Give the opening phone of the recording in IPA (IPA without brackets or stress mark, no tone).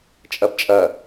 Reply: t͡ʃʼ